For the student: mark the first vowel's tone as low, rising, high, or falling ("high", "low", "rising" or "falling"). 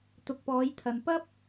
low